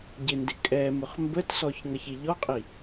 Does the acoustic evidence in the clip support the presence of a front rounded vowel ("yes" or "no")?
no